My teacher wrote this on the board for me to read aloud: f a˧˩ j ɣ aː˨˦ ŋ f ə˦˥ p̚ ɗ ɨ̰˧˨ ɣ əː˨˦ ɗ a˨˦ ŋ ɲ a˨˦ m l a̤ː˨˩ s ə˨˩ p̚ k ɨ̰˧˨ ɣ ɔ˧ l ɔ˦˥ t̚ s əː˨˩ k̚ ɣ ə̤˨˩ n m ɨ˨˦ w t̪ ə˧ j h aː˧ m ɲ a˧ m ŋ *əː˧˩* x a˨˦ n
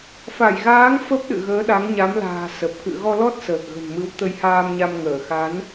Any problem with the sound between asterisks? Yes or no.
no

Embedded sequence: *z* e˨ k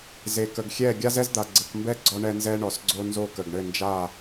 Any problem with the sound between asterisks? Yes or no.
no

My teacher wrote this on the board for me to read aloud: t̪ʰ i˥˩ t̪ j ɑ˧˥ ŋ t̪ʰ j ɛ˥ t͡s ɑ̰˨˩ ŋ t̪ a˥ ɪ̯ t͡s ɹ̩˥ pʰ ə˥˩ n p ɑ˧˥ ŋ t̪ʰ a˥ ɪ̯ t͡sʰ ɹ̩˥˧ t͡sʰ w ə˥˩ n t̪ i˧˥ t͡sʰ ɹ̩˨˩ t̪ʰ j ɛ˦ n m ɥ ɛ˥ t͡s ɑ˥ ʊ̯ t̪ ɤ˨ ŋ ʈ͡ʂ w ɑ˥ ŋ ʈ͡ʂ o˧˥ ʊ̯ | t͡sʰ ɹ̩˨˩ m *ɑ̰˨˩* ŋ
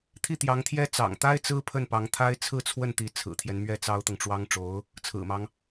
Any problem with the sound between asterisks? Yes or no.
yes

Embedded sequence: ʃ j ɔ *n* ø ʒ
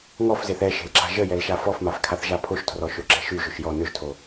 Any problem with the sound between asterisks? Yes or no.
no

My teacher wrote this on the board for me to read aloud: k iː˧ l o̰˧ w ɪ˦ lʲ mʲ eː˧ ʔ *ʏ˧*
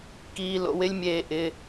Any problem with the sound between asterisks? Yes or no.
yes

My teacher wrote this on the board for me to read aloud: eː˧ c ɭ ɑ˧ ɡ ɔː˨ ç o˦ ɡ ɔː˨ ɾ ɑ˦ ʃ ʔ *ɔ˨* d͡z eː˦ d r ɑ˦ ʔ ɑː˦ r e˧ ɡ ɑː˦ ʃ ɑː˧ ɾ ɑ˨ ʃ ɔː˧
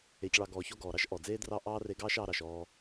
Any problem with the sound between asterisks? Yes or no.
no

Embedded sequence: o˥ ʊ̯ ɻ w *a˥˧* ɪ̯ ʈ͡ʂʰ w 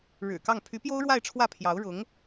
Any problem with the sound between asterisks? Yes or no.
no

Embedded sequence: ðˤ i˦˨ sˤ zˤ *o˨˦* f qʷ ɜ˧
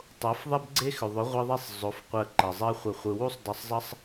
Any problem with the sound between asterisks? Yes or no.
no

